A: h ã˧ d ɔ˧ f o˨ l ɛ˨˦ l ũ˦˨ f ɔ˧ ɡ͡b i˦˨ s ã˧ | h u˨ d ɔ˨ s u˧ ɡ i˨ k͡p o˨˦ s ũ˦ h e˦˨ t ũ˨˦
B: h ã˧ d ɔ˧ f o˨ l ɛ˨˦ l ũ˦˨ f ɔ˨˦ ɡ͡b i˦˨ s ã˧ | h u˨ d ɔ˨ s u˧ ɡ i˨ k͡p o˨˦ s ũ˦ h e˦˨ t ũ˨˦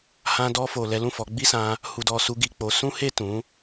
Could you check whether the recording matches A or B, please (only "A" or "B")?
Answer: B